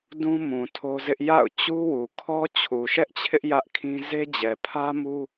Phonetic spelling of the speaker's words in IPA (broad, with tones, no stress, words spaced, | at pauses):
dũ˦mũ˨ tʰo˦zɪ˦ʔ ja̰˦˨ʊ̯ t͡ɕu˦wu˨kʰɔ˦ t͡ɕʰu˨ʃɛ˦ʔt͡ɕʰɪ˦ʔ jä˦ʔkʰĩ˦ ze˦d͡ʑɛ˨ pʰä˦mu˦